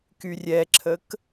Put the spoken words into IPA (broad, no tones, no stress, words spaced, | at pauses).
kyrʲɛǁʰək